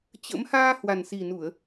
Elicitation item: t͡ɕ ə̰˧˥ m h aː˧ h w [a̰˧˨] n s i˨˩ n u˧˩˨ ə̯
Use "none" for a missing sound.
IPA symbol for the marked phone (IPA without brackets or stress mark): a˨˩